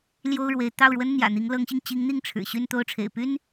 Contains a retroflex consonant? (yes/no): yes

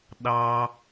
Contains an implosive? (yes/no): yes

